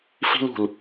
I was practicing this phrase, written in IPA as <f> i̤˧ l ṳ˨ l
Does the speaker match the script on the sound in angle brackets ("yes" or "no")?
yes